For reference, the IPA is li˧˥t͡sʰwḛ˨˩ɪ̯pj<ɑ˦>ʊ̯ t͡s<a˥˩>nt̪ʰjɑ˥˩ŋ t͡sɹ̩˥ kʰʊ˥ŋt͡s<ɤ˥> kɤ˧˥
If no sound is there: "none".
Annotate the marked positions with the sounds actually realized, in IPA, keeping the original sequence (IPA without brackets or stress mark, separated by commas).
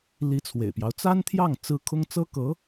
ɑ˦, a˥, ɤ˥